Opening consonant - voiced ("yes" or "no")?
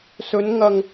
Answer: no